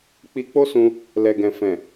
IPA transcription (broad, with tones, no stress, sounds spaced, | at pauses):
k͡p i˧ k͡p o˦ s ũ˧ | l ɛ˨ ɡ ɛ̃˨ f ɛ̃˨